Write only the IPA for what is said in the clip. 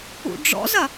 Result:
ṵ ɖ͡ʐ ɔ̰ z ɐ

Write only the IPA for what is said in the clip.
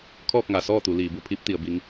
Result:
kʰ ɔː˥˨ k̚ ŋ a˩˧ s ɔː˥˨ t̪ u˩˧ l iː˩˧ b u˧ pʰ i˧˥ p̚ t̪ i˩˧ ə̯ b i˧˥ ŋ

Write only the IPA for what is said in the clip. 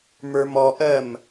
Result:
m ə˞ m ɔ ʔ ɜ m

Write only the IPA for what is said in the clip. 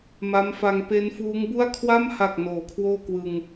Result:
m a˦˥ m f a˧ ŋ p e˦˥ n f uː˦˥ ŋ b u˥˩ a̯ kʰ w a˥˩ m h a˨˩ k̚ n oː˩˦ kʰ w oː˥˩ k w ɯ˧ ŋ

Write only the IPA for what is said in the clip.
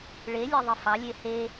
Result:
ɭ e lʲ e ðˤ ɯ f ɑ lʲ e h e

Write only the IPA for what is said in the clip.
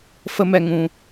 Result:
f ə˧ m ɛ˨ ŋ ũ˨

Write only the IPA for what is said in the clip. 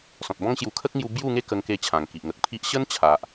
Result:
s ɔ̃˨ t̚ b ɔ̃˦ ŋ ɕ j u˧ kʰ ə˦ k̚ ŋ j u˧ b j u˥˧ ŋ e˦ k ə˧ ŋ k e˧ t͡ɕʰ ã˨˩ ŋ k i˨ ʔ ŋ ə˨ k̚ pʰ i˦ ʔ ɕ ə˦ n t͡ɕʰ a˨ ʔ

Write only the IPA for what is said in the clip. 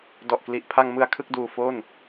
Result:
d ɔ˨˩ ʔ k l i˨˩ ʔ pʰ a˧ ŋ m ɯ˧ a̯ kʰ ɯ˥˩ k̚ d uː˧ f o˥˩ n

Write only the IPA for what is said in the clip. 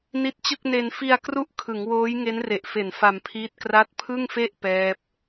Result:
n i˦˥ t̚ t͡ɕ ɯ˥˩ k̚ n e˧ n f i˧ a̯ k r u˥˩ ʔ kʰ ɯ˩˦ ŋ w oː˦˥ j ŋ e˦˥ n r e˨˩ ʔ f e˨˩ n f a˧ m pʰ iː˦˥ t̚ k r a˦˥ t̚ pʰ ɯ˥˩ ŋ f e˥˩ ʔ p ɛː˦˥ p̚

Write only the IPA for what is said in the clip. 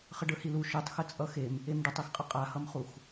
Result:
χ ə ɖ ə˞ h i l u ʃ ø tˤ x ə t͡sʼ ʌ x e m | e m ɖ ə tˤ i x qʼ ə qʼ a h ʌ m χ u x

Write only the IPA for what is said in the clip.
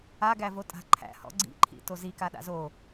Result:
a ɡ æ v o tʼ a̤ ǃʰ æ̰ h ɔ̰ ɡ͡ǀ ḭ ǃʰ ḭ t o z i k a ɗ a̰ z o

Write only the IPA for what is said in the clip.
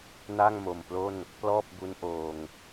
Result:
n a˥˩ ŋ m o˨˩ m p l o˥˩ n | p l ɔː˥˩ p̚ b u˦˥ n ʔ oː˧ ŋ

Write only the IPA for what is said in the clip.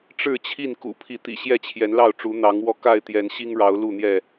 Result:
ʈ͡ʂ ɻ̩˥˨ t͡ɕʰ i˥˨ n k ṵ˨˩ pʰ i˨˦ t̪ ḭ˨˩ ɕ j ɛ˥˨ t͡ɕʰ j ɛ˨˦ n l ɑ˥˨ ʊ̯ ʈ͡ʂ u˨˦ n̪ ɑ˨˦ ŋ w ɔ˥˨ k a˥˨ ɪ̯ t̪ j ɛ˨˦ n ɕ i˦ ŋ ɻ ɑ˨˦ ʊ̯ l u˥˨ n̪ j ɛ˥˨

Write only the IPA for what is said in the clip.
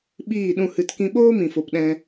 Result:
ɓ iː˦˨ ɗ ũ˧ h ɨ˧ t k ĩ˦ ɓ oː˦ m ĩ˨ f o˨ p ɗ ɛ̃˧

